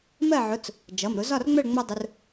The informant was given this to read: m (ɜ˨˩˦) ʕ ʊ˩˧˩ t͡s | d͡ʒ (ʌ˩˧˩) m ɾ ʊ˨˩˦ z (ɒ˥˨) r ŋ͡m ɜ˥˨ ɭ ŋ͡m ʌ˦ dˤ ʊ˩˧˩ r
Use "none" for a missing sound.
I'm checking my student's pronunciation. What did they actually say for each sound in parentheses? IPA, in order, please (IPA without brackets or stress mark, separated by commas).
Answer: ɜ˥˨, ʌ˩˧˩, ɒ˥˨